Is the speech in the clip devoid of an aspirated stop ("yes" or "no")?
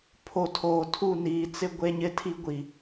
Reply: no